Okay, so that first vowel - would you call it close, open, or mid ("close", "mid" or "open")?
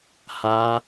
open